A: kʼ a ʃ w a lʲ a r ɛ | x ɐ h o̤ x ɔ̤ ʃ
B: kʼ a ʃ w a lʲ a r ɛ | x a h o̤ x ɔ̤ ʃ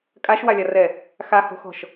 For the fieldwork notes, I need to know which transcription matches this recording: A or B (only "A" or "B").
B